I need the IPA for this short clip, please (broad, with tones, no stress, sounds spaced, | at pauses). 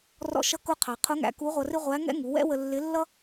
r ɔ̰˧ ʃ ʌ˧˥ k ʊ˧ qʰ ɑ˩ qʰ ʊ˧˥ ŋ æ̰˩˧ k u˧˥ ʁʷ ʌ˧ r ɪ˥ ʁʷ æ˧˥ ŋ ɛ̰˥ ŋ u˩˧ w ɛ̰˥ w ə˧ lː ɪ˧˥ lː ʌ˥